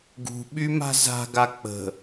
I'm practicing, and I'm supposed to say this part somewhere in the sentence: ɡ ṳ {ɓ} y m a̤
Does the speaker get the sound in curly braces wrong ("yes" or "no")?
no